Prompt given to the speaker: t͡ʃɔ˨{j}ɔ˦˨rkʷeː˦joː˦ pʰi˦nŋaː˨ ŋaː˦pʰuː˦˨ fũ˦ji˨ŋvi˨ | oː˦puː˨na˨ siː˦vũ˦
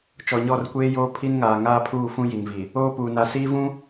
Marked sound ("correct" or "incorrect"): incorrect